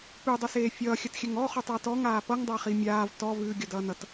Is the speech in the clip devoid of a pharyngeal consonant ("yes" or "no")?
yes